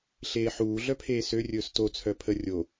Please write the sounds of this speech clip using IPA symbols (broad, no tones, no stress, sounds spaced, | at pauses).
ɬ eː ħ uː ɮ œ pʰ eː s ø rʲ ɵː s t o t͡sʰ œ pʰ ə rʲ o